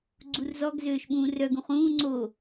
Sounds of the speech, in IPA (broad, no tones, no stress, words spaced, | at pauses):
ɡ͡ǀurzɔɡ zøːʃɓũːrœɡ ũχũː ŋ͡ǀo